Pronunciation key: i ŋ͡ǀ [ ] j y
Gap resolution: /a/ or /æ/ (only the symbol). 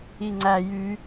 æ